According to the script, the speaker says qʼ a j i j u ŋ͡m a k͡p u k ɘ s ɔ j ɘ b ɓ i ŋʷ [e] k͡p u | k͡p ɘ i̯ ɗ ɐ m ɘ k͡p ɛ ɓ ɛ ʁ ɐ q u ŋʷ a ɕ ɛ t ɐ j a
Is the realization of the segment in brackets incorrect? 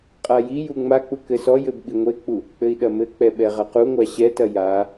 no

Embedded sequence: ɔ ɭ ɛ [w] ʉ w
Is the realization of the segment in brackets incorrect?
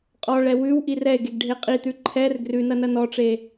no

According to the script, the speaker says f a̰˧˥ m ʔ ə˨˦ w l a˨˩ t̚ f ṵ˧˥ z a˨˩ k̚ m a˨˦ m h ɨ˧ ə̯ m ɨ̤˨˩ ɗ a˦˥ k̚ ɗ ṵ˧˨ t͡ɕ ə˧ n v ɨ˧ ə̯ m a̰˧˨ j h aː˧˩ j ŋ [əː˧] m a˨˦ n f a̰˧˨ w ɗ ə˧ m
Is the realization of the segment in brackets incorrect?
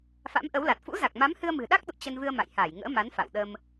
yes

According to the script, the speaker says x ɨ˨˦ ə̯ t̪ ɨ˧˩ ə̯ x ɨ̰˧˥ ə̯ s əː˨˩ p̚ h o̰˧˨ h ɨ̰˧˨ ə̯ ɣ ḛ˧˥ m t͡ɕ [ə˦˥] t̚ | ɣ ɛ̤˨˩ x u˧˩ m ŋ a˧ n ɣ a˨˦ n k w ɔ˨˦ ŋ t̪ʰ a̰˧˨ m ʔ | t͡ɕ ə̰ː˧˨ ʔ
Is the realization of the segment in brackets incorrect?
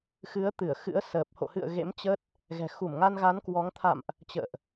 no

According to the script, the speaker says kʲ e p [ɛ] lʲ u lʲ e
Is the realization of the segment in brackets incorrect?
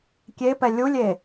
no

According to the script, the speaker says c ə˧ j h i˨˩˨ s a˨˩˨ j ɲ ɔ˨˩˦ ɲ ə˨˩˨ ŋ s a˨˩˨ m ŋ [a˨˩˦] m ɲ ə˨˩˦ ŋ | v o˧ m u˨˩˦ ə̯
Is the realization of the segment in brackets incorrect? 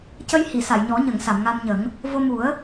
yes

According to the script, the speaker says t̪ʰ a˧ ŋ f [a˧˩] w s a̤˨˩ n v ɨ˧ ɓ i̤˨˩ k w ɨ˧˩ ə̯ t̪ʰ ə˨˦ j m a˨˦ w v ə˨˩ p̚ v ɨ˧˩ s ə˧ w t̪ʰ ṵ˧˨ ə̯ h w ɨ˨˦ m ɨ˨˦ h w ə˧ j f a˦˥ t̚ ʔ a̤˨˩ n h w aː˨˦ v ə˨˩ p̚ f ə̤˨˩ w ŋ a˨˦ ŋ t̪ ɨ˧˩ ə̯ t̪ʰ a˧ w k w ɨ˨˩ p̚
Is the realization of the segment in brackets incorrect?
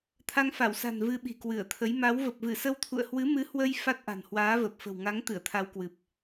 no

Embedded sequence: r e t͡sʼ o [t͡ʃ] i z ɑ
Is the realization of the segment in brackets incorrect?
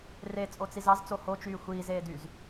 yes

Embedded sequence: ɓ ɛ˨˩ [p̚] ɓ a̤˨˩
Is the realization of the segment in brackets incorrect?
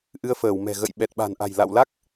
yes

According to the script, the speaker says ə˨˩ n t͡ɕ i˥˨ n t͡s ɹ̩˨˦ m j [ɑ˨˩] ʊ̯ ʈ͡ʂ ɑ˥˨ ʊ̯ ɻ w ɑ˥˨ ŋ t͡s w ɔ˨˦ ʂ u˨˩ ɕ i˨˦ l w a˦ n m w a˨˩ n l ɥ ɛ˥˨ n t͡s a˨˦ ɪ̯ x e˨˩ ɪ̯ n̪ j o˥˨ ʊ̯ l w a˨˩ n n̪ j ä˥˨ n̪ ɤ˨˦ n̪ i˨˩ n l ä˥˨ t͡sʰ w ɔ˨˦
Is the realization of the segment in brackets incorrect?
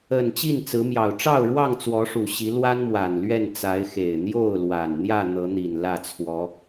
no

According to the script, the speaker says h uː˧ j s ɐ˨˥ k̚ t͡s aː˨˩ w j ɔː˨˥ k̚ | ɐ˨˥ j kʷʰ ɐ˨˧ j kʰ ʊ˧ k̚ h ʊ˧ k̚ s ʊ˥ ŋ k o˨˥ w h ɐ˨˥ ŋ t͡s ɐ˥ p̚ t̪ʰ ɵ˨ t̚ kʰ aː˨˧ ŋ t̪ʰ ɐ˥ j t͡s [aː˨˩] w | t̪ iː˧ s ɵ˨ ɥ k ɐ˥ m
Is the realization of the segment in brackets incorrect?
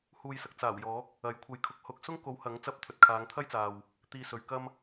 yes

